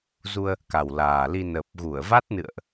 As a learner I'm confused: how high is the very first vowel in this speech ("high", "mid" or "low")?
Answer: high